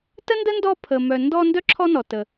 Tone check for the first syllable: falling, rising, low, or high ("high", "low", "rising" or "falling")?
high